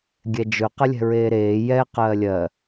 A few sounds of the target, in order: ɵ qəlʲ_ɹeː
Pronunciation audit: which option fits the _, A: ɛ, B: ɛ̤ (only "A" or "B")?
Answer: B